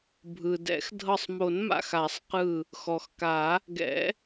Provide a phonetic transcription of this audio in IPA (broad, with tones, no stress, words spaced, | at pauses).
bʱɯ˩dɛ̰˨˩˦xdʱɤ˧˩sˤmo˨˩˦n ma̰˧˩xa˨˩˦sˤqɯ˧˩ | xɔ˩xka˨˩˦ | ɡɛ̰˨˩˦